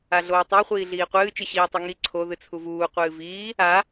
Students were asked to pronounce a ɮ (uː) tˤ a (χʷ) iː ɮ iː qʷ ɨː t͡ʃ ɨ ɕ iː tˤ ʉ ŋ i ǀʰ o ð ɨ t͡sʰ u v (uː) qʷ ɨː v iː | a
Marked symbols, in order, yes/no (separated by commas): no, yes, yes